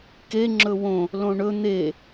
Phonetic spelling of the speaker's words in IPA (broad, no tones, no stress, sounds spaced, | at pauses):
k e ŋ͡ǁ ɵ w õ | l õ ɳ ɵ n̪ e